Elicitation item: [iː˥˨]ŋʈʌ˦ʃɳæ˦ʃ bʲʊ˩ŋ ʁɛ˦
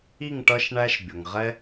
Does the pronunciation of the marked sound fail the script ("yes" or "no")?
yes